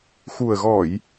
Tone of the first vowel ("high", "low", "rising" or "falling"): low